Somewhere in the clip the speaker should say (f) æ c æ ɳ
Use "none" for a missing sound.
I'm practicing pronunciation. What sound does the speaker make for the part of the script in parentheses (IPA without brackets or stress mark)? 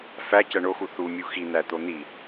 f